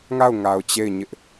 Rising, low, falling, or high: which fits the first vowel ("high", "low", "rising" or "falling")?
falling